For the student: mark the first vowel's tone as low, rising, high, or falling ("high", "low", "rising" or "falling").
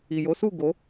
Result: low